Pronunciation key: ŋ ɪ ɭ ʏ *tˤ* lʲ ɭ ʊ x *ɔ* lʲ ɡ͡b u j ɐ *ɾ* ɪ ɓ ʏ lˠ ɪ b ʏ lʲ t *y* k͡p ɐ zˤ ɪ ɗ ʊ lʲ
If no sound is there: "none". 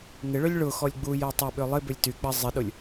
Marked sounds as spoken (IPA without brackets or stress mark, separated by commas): none, ɔ, tˤ, y